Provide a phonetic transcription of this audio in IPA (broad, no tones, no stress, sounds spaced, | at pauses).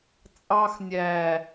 t͡sʼ ɑ x nʲ æ